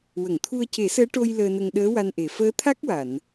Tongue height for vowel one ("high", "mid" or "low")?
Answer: mid